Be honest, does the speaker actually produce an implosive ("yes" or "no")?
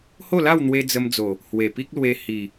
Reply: no